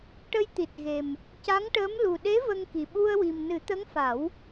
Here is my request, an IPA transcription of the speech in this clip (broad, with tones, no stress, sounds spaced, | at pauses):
ʈ ə˧ j t̪ i˨˩ t̚ ɣ e˨˩ m | c a˧˥ ŋ ʈ əː˧˥ m l u˨˩ ɗ e˧˥ v ə˧ ŋ k i˨˩ ɓ u˧ ə̯ w i˨˩ m n ɨ˨˩˦ t̪ ə˧˥ ŋ f a˨˩˦ w